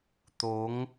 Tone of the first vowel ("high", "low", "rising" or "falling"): rising